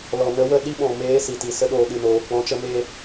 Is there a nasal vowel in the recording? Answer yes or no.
yes